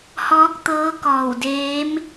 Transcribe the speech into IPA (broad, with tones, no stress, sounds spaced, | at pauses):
h ɔː˧˥ k̚ t̪ ɤː˧˥ k ɔː˧˩ w d eː˧˥ m